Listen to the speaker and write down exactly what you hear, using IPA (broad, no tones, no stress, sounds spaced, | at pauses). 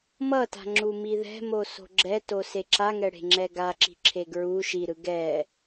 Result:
m ʌ t a̤ ŋ͡ǁ u m i ð ɛ̤ m o s o̤ ɡ͡ǁ ɛ t o s e ǁ a ŋ ɛ ɽ e̤ ŋ͡ǁ ɛ ɡ a ǁ i̤ ǁʰ e ɡ ɹ u ʃ i ɾ ɯ ɡ ɛ